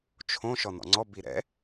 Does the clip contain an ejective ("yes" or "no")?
no